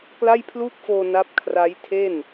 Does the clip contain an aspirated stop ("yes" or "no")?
yes